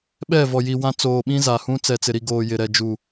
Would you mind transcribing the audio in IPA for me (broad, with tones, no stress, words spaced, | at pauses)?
ɓɛ˦˨vɔ˨ji˨ wã˦ t͡soː˨ɓĩ˦ za˨hũ˦ t͡sɛ˨t͡sɪ˨ɾi˨ ɡoː˨jɪ˨ɾɛ˨ d͡ʒu˨